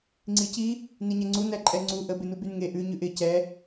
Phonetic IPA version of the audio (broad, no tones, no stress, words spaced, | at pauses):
ŋ͡ǀici | niɲɛŋ͡ǀu næǃʼɛŋ͡ǀu ʔə bɪnubynŋe ʔʉ ɲʉʔɪ cɛ